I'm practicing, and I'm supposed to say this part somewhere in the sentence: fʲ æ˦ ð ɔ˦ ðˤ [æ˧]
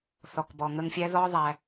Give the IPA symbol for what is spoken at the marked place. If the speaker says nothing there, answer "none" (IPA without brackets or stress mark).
æ˧